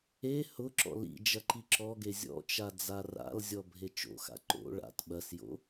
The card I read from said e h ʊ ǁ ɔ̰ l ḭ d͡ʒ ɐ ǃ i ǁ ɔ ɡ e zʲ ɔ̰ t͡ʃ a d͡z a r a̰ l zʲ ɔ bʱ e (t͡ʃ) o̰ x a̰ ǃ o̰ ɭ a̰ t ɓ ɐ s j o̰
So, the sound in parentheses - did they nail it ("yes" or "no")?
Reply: yes